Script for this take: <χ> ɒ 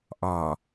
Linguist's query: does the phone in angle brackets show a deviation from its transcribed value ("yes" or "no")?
yes